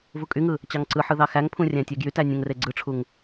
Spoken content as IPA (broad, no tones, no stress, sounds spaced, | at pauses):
v u kʼ y ŋ ɯ | t͡ɕ ɑ ŋ ǀ ɯ ħ ɯ ð ɑ x æ ŋ pʰ ũ rʲ æ̃ tʲ e ɡ j y t æ nʲ ũ ŋ r e ɡ͡ǀ ɯ ʈ͡ʂʰ u ŋ